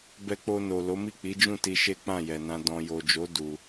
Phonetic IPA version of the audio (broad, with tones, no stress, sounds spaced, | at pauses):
b ɛ˧ k͡p o˧ n o˨ l o˨˦ m i˦˨ k͡p i˨˦ d͡ʒ ũ˦˨ t i˧ ʃ e˦ k͡p ã˦˨ j ɛ˨ n ã˧ d ɔ̃˨ j o˨ d͡ʒ o˨˦ d u˧